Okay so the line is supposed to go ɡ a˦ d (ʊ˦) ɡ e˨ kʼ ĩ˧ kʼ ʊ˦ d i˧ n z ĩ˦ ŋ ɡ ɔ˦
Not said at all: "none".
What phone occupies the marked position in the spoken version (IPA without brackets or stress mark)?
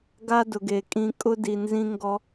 ʊ˨